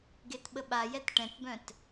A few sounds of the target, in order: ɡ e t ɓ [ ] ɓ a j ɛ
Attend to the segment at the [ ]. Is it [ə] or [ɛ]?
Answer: ə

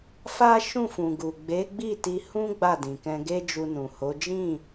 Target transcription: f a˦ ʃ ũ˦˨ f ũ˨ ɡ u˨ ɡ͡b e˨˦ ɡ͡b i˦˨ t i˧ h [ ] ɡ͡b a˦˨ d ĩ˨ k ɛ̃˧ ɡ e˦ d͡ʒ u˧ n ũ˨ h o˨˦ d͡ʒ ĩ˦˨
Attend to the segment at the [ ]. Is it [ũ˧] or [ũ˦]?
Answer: ũ˦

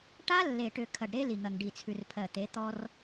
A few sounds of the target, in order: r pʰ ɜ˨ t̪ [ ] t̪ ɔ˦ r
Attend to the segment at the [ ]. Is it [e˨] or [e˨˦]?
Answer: e˨˦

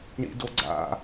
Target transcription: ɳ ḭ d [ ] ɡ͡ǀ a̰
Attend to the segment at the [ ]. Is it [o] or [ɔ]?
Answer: o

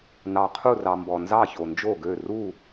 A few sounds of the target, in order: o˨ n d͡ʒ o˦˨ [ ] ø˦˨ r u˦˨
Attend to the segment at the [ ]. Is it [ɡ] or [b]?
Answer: ɡ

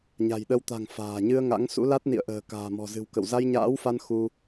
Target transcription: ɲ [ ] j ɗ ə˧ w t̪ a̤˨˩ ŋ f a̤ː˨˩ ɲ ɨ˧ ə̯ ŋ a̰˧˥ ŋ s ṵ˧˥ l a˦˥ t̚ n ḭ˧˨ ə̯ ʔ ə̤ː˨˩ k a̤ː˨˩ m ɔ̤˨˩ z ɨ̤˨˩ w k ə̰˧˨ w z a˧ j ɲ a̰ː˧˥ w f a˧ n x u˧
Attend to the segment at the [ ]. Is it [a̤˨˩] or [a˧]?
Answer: a̤˨˩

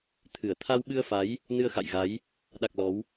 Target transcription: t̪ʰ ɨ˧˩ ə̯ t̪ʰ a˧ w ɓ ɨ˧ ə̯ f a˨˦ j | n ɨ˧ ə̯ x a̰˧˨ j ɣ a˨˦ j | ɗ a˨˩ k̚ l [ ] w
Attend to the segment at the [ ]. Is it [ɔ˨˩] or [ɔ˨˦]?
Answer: ɔ˨˦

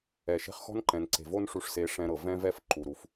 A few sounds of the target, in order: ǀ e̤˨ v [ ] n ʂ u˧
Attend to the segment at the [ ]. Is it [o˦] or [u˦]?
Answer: o˦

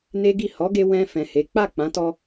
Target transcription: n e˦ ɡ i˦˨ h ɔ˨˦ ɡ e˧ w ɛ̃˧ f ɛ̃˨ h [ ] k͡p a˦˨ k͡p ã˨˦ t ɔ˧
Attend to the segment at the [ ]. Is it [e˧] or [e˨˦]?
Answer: e˨˦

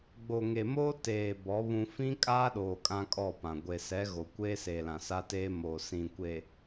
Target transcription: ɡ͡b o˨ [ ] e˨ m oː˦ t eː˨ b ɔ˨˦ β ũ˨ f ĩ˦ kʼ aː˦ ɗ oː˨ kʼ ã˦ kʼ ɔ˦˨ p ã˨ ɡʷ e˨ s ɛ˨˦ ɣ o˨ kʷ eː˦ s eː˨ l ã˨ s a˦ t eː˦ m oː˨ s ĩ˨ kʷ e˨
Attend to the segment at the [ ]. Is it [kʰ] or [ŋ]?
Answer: ŋ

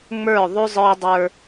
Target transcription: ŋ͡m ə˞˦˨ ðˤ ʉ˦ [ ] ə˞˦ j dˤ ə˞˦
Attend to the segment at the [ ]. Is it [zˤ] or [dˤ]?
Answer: zˤ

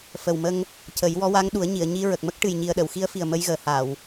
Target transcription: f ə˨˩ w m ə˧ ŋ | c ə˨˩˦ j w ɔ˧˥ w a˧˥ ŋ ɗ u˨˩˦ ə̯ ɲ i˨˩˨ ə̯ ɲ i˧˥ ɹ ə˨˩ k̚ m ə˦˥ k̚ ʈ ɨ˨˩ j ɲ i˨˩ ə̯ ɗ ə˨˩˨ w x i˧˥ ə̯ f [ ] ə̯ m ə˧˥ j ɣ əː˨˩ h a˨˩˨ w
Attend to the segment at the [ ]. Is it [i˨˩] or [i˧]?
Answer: i˨˩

